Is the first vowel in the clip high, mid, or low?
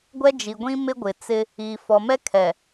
mid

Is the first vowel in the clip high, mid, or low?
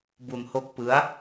high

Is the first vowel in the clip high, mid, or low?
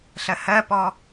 mid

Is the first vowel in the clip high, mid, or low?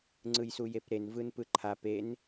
high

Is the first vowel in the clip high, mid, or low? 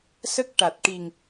mid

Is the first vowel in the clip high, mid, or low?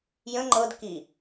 mid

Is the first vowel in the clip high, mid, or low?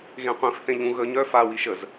mid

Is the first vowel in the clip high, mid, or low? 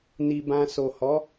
high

